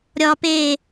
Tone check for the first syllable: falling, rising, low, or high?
low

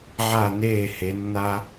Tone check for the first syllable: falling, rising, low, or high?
falling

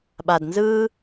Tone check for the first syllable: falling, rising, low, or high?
low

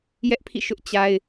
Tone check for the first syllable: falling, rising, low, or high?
high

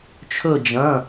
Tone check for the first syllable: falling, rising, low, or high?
falling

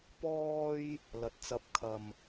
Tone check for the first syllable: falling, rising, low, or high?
high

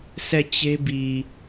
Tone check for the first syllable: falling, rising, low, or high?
falling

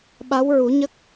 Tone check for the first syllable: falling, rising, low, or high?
rising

